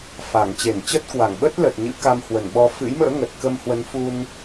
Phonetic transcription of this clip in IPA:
f a˧˩ ŋ t͡ɕ e˧˩ n t͡ɕ ə˦˥ t̚ k w a˧˩ ŋ ɓ ə˦˥ t̚ l ə˨˩ t̚ ɲ ɨ̰˧˥ k a˧ m h w ə˧˩ n ɓ ɔ˧ f ɨ̰˧˥ j m ə̰ː˧˥ ŋ ə˨˩ t̚ k ə˧ m h w ə˨˦ n f u˧ n

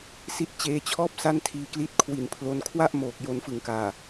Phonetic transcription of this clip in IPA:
s i˦˥ t̚ t͡ɕ eː˧ t͡ɕʰ ɔː˥˩ p̚ s a˥˩ n tʰ iː˧ k l i˦˥ t̚ kʰ w i˨˩ n pʰ l o˧ n kʰ w a˥˩ ʔ m oː˨˩ k̚ j o˧ n f ɯ˨˩ ŋ k aː˨˩

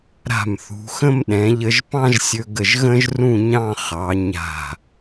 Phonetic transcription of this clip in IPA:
ɾ a̤˧˩ m θ ṳ˩˧ x ə̃˥ m ɗ ɛ̃˩˧ ʎ ə˧ ʒ p ɑ̃˥ ʒ sʲ ɵ˧ ɡ ə˧˩ ʒ ɣ ə̃˥ ʒ r ũ˥˧ ɲ ɑ̃˥˧ χ ɑ˩˧ ɲ a̤˧˩

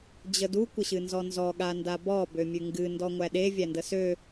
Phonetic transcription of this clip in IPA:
d͡ʑ ə d u kʷ ə ɕ ɨ n z ɔ n z ɔ ɠ a n d a b ɔ b ø mʲ ʉ ŋ ɡ ɨ n d ɔ ŋʷ æ ɗ e vʲ æ n d ə s ø

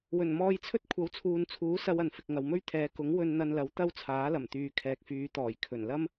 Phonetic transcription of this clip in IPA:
w ɵ˨˩ n m ɔː˧ j t͡sʰ ɵ˥ t̚ kʷʰ ɐ˨˥ w t͡sʰ uː˨ n t͡sʰ uː˨˥ s ɐ˧ w ɐ˨ n f ɪ˨ k̚ ŋ ɐ˨ w m ɵ˥ ɥ t̪ʰ ɛː˨˧ k ʊ˨˥ ŋ w ɵ˧ n n̪ ɐ˧ n l ɐ˨˥ w t̪ ɐ˥ w t͡sʰ aː˨˥ l ɐ˨˩ m t̪ yː˨ kʰ ɛː˨ k̚ f yː˨˧ t̪ ɔː˨˩ j kʰ ɵ˨˩ n l ɐ˥ m

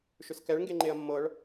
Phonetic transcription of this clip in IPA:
ʃ ʏ s k ɛ ɭ ŋ ɡ e ŋ͡ǃ e ɐ̯ mː ɤ ɭ

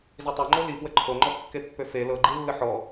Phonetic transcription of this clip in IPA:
z i tˤ o ŋ͡ǃ o l i p w ə ǃʰ o ŋ͡ǃ ɔ kː e pː ø f e l ɤ ɡ͡ǃ i lː ə ħ ɔ

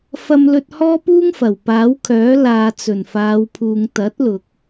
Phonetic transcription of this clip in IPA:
f ɐ˧ m l ɵ˧ t̚ h ɔː˥ p uː˥ ŋ f ɐ˨˩ w p aː˨˥ w kʰ œː˨˥ l aː˨ t͡s ɵ˨˩ n f aː˨˧ w pʰ uː˨ ŋ t̪ ɐ˨˥ t̚ l ʊ˨ k̚

